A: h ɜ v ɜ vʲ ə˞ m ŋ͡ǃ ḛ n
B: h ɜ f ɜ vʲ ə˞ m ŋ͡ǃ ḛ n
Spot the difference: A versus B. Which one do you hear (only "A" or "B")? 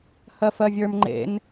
B